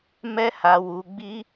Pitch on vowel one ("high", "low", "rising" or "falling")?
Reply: high